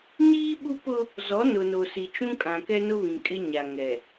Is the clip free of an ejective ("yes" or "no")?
no